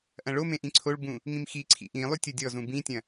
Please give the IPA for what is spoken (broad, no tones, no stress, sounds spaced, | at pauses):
ʔ ɐ̃ ɭ o m ẽ ʔ ĩ ǀʰ o ɭ b ũ | ŋ ĩ m x i ǀʰ ḭ ʔ ĩ lˠ y tʲ ʊ dʲ ɔ z ũ b ĩ tʲ ɐ̃